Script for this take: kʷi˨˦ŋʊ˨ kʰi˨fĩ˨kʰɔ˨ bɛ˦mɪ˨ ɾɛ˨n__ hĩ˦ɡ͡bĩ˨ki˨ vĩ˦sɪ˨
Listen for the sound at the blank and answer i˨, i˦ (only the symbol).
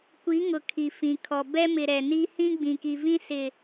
i˦